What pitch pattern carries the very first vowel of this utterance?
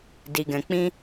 low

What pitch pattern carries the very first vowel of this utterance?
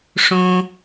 high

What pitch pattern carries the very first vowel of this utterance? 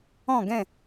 falling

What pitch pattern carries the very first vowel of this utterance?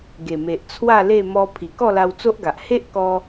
low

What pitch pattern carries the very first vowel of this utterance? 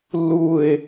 falling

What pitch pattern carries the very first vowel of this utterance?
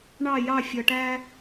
falling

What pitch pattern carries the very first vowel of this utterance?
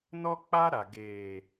high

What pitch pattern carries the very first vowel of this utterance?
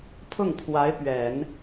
falling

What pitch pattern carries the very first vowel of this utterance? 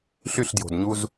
falling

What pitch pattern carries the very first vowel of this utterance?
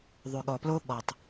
low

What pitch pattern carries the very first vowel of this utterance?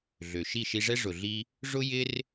low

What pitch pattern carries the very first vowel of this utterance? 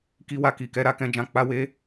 high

